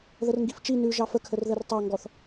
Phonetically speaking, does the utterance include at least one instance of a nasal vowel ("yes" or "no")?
no